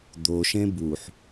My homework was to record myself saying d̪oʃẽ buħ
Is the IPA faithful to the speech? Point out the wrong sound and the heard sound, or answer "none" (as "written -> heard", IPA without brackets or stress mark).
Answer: none